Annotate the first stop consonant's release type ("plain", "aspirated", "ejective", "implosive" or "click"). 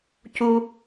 plain